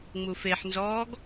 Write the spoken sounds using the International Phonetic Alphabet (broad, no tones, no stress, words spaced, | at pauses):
ŋ͡mufeħnzɔːɡ